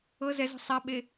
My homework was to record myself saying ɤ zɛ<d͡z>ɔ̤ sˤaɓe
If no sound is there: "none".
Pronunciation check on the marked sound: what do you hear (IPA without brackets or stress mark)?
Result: z